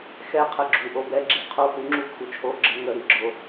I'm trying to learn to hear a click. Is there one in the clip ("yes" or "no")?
yes